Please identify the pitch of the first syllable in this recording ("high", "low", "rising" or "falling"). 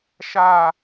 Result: falling